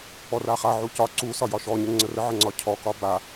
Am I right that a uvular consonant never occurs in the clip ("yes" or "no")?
no